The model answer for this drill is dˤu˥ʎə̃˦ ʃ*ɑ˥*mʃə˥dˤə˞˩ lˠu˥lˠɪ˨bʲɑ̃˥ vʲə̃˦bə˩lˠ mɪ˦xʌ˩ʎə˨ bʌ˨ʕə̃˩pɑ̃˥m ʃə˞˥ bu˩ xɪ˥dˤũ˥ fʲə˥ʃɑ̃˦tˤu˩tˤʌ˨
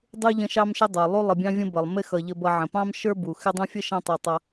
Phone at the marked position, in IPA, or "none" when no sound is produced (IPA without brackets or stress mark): ɑ˥